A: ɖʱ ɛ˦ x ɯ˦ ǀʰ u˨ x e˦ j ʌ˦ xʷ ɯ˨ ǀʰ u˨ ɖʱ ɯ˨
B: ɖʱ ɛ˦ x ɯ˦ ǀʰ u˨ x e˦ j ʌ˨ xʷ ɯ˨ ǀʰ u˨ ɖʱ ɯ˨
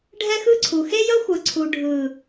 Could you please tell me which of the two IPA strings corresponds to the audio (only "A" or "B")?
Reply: A